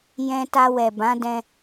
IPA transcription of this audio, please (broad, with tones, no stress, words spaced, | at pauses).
jɛ̃˧ta˧ wɛ˨bã˨˦ dɛ̃˧